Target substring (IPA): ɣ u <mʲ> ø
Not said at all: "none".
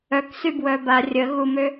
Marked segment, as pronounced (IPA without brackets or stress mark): m